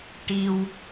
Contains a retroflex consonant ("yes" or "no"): yes